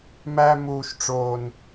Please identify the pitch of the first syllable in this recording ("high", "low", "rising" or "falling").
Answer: high